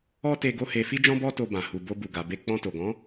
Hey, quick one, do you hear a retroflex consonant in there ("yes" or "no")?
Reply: no